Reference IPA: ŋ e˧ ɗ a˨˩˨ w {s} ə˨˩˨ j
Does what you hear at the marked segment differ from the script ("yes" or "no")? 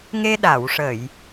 yes